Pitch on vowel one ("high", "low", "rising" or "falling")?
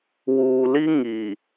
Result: low